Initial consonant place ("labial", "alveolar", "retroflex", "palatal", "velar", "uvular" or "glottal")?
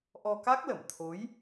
glottal